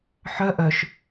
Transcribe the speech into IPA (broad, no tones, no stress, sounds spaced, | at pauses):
ħ œ ʔ œ ʃ